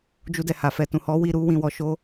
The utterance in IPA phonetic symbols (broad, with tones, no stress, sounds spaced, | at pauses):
d͡ʒ u˧ d ɛ˨ h a˨ f ɛ˨ t ũ˨ h ɔ˨˦ w i˧ ɾ u˧ w ĩ˨ w ɔ˨ ʃ o˧